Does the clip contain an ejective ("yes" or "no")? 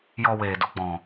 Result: no